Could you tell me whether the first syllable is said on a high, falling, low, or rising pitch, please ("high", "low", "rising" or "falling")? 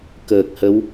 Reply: low